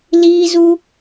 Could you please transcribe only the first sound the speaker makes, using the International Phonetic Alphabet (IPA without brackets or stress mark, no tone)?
l